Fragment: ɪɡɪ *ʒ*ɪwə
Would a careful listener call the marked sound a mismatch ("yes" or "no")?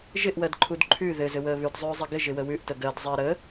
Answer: no